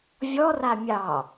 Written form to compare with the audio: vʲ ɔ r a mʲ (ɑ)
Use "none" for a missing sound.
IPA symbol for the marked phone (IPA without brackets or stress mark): ɑ